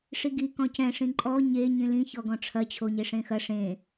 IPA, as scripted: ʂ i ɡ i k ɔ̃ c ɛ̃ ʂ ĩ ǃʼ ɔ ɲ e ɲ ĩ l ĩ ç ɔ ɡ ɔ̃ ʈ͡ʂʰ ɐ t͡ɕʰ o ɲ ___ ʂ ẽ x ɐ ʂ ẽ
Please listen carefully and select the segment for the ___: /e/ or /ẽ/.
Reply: e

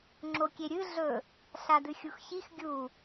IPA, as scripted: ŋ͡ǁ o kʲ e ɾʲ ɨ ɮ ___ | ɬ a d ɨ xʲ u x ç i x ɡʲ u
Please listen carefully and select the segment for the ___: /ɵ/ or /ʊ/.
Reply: ɵ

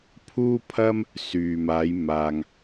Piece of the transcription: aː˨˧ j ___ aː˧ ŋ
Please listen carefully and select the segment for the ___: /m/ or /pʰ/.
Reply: m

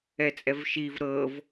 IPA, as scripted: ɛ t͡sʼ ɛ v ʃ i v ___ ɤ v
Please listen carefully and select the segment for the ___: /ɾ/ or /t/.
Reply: ɾ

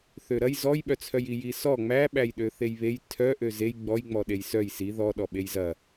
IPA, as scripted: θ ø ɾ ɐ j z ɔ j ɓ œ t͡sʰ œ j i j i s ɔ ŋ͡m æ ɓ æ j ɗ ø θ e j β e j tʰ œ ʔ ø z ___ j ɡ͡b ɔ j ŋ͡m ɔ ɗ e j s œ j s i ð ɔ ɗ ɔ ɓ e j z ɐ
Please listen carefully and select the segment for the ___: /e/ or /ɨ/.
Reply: e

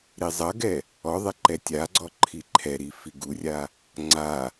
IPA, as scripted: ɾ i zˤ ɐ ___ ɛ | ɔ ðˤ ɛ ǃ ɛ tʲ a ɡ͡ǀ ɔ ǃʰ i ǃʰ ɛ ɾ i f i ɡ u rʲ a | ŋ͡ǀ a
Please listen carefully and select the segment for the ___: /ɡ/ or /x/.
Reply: ɡ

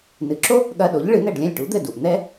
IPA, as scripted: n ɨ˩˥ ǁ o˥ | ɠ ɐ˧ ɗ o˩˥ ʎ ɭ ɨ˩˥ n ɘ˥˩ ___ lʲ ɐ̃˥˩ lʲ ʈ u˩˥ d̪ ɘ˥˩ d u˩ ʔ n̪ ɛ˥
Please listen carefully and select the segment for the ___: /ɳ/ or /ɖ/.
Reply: ɖ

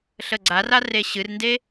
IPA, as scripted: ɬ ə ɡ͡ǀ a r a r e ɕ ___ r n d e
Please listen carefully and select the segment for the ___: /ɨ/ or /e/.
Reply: ɨ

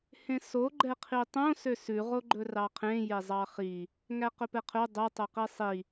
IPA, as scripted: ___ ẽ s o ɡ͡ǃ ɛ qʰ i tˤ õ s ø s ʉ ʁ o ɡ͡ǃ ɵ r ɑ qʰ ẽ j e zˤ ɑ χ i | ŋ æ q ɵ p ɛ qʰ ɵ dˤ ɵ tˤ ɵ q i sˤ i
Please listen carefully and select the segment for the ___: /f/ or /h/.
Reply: h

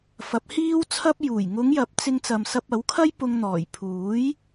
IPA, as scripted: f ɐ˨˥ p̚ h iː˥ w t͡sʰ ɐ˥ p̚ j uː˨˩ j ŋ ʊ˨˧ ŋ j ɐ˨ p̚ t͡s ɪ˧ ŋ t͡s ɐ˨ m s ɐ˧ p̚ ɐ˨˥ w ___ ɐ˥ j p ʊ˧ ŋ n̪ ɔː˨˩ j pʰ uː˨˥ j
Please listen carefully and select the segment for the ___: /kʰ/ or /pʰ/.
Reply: kʰ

